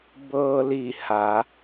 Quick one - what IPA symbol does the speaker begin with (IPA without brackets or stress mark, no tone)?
b